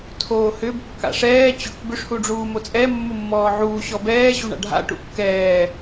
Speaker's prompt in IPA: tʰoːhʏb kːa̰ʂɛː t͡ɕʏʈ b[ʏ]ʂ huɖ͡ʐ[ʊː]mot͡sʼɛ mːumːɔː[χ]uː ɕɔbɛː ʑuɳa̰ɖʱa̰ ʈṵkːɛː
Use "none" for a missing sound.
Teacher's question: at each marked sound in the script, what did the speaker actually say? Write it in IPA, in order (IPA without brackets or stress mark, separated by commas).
ʏ, uː, ʕ